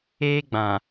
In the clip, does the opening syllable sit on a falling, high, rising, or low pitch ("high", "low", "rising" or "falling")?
high